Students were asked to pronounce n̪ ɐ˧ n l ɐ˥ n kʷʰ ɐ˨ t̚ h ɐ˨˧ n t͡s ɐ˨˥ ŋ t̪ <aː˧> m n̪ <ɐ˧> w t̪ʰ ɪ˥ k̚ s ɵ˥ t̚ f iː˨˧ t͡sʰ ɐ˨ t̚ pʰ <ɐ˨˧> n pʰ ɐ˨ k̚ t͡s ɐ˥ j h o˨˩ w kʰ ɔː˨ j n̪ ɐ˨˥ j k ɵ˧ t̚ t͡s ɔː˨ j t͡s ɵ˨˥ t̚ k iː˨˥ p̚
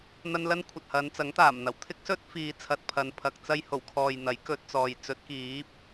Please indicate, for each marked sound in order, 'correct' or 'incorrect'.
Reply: incorrect: aː˨˩, incorrect: ɐ˨˩, correct

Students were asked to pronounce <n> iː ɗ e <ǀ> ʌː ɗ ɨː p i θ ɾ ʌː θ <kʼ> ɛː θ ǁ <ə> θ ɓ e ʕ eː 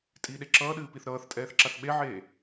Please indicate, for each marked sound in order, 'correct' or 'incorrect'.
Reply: incorrect: tʼ, incorrect: ǁ, incorrect: tʼ, incorrect: a

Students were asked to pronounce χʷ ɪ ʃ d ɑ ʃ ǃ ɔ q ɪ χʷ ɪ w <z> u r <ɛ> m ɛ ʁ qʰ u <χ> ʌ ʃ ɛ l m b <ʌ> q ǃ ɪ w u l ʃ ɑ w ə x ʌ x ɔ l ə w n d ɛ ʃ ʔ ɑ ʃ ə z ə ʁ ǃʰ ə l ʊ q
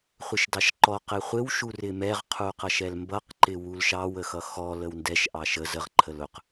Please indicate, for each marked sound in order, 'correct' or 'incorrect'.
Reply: incorrect: ʃ, incorrect: ɪ, incorrect: q, correct

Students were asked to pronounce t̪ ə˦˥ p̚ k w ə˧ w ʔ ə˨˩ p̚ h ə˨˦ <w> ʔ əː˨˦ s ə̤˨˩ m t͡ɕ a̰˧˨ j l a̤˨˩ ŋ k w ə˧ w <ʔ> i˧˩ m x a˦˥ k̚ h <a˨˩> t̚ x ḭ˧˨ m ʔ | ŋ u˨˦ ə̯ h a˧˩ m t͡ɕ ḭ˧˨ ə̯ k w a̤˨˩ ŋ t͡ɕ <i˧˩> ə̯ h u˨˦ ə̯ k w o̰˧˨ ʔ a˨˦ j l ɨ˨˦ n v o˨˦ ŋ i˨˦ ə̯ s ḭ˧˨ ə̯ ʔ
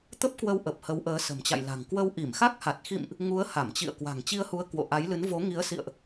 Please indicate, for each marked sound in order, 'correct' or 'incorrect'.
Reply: correct, correct, correct, incorrect: i˧

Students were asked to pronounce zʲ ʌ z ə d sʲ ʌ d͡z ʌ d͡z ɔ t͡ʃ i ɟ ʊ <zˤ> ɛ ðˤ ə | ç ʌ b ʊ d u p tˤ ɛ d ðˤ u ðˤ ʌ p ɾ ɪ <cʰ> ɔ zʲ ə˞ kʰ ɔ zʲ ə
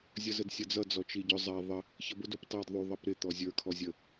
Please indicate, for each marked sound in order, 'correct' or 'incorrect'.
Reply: correct, incorrect: t̪

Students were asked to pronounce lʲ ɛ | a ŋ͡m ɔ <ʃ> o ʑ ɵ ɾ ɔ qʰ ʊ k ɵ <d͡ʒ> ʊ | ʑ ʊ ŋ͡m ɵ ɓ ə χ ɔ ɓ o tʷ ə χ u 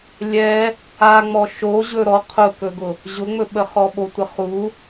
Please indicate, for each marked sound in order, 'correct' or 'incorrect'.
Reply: correct, incorrect: ɡ

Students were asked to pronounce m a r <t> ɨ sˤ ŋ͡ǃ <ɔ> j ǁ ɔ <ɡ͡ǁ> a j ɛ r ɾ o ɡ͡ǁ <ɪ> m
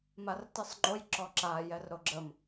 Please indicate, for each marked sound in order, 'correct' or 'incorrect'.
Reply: correct, incorrect: o, incorrect: ǁ, incorrect: ə

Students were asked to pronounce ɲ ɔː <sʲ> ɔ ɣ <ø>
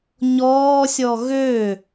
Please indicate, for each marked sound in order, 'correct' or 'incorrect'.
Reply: correct, correct

